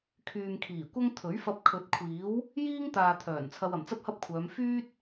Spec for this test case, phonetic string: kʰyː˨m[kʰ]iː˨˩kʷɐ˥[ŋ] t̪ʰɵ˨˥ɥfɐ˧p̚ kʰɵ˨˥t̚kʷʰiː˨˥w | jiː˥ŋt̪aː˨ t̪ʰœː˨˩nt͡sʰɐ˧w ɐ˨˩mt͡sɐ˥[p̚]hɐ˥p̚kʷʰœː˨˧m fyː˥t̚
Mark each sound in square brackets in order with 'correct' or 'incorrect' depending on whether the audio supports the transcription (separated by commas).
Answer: correct, correct, correct